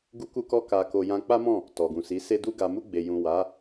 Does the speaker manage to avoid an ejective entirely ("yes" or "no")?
yes